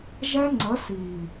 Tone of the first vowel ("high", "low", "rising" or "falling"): high